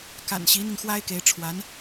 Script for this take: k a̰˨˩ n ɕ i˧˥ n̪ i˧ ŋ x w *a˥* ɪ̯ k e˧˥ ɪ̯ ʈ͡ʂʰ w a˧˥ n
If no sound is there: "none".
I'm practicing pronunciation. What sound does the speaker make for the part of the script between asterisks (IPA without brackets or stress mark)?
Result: a˥